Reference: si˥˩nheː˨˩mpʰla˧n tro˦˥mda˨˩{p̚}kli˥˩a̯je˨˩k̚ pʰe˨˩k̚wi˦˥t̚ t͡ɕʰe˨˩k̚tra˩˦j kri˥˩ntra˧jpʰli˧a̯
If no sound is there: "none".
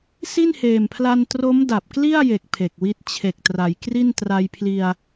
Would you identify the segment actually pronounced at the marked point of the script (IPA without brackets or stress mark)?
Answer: p̚